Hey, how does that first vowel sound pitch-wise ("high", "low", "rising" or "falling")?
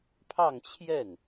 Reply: falling